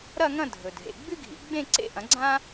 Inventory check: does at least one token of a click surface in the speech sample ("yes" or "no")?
yes